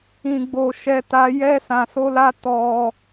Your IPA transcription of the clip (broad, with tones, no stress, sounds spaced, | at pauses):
ĩ˧ ɡ͡b o˧ ʃ ɛ˦ t a˦ j ɛ˦ s ã˧ s o˦ l a˦ t ɔ˧